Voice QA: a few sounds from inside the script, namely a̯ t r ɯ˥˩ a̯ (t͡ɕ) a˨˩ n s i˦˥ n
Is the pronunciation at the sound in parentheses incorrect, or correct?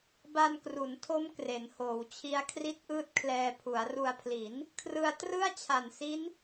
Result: incorrect